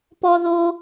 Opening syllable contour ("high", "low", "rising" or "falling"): high